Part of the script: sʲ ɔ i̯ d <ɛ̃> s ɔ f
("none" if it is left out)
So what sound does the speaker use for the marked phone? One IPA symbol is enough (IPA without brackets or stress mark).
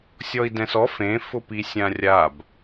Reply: ɛ̃